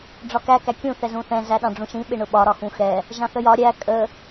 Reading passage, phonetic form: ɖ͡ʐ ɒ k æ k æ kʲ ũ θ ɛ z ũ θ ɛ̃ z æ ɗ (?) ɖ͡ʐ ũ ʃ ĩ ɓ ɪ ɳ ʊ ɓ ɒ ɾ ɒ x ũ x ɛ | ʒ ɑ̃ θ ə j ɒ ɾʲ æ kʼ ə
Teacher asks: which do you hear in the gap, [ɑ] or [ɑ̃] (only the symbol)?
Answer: ɑ̃